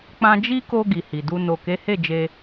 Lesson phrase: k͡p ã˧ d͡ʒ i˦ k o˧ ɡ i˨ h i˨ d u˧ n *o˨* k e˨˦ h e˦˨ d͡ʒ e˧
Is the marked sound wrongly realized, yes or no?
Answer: no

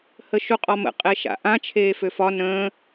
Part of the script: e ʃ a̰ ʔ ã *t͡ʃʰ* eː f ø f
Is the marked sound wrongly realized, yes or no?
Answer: no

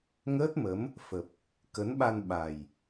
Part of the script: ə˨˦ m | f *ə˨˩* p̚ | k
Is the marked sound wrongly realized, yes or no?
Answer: no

